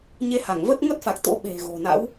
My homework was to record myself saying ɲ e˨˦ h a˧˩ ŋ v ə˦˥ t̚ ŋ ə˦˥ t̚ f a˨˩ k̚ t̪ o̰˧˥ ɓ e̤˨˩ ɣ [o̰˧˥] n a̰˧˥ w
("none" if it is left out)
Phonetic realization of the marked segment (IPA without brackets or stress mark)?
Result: o̤˨˩